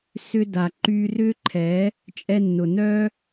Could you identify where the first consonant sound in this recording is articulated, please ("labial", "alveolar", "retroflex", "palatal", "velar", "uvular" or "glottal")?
alveolar